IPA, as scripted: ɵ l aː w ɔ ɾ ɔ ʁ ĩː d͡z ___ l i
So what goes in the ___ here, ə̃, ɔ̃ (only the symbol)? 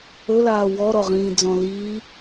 ɔ̃